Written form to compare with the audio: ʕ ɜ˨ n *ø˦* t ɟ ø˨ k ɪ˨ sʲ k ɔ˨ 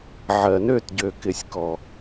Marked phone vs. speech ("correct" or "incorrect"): incorrect